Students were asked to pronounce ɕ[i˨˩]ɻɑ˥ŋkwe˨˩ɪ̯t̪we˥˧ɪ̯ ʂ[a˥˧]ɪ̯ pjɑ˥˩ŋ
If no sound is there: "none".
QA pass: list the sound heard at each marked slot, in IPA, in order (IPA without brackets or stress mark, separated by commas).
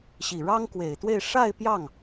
i˨˩, a˥˧